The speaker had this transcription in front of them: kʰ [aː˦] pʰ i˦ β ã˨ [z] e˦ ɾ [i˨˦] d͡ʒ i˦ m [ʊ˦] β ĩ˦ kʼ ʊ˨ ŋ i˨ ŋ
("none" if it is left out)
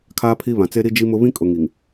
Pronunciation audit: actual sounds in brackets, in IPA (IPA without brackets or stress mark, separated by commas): aː˦, t͡s, i˦, ʊ˦